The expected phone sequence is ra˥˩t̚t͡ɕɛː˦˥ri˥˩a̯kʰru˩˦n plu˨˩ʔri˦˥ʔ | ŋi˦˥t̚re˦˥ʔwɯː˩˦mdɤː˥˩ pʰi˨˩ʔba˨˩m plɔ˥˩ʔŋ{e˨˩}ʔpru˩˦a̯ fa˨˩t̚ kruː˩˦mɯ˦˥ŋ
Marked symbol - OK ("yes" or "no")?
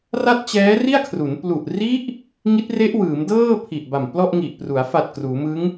no